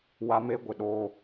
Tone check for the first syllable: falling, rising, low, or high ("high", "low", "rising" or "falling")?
high